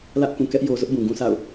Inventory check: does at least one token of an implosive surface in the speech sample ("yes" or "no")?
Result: no